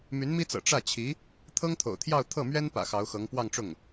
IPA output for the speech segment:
m y˧˥ n m i˥ t͡s ɤ̰˨˩ ʈ͡ʂ ä˥˩ t͡ɕʰ i˧˥ | t̪ʰ ɤ˥ ŋ t̪ʰ o̰˨˩ ʊ̯ t̪ʰ j ɑ˥˧ ʊ̯ t̪ʰ ɤ˥˩ m ɥ ɛ˥ n p ä̰˨˩ x ɑ˧˥ ʊ̯ x ɤ˧˥ ŋ p w ɑ˥˧ ŋ ʈ͡ʂ ʊ˥˩ ŋ

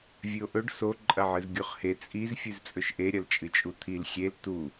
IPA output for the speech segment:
vʲ ʉ o̯ ʔ ɵ ɖ s o ǃʼ ɐ ʕ ɨ z ɡʲ o χ h e t͡sʼ i z fʲ ʉ z t͡sʼ ɵ ʃ ʔ e ɾʲ ɐ l t͡ʃʼ ɨ t͡ʃʼ u t̪ʰ i l xʲ e l t u

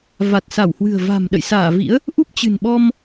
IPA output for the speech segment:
v a˨˩ t̚ s a˧˩ w h w ɨ̤˨˩ ə̯ v a̤˨˩ m ɗ ə̰˧˨ j s aː˧˩ v ḭ˧˥ ə̯ | ʔ u˦˥ p̚ t͡ɕ ɨ̤˨˩ n ɓ ɔ˧ m

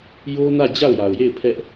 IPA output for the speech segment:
j o˦ n ä˦˨ d͡ʑ a˦˨ ʊ̯ j a˨ ʊ̯ j e˦˨ ɪ̯ pʰ ɛ˦ ʔ

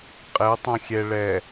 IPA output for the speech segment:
qʼ ɛ tˤ õ xʲ ɛ ɭ ɛ

